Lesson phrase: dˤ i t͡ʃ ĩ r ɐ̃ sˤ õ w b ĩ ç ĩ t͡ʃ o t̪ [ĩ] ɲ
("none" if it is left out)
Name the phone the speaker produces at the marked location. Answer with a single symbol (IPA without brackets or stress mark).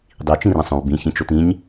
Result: ĩ